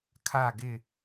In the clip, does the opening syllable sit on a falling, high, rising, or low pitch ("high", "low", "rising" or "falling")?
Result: falling